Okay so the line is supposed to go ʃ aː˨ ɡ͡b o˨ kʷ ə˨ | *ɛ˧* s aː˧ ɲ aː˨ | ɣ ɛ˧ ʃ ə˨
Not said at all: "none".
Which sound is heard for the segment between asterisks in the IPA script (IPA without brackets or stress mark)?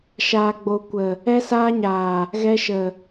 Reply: ɛ˧